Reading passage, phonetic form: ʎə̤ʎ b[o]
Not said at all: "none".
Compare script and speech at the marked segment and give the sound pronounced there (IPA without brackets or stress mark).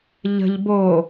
o